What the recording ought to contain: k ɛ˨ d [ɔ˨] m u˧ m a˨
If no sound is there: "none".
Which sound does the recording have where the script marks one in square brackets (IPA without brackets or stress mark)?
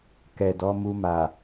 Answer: ɔ˨˦